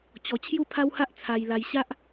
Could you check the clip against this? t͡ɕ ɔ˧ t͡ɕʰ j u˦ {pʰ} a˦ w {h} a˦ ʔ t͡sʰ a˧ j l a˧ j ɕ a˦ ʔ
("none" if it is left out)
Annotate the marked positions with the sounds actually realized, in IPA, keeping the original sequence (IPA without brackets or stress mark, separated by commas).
pʰ, h